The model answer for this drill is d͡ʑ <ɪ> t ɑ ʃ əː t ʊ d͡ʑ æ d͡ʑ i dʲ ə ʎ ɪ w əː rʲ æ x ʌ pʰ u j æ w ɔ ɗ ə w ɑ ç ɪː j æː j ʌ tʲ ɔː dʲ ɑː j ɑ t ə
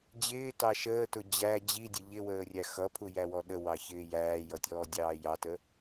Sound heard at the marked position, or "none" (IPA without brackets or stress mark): ɪː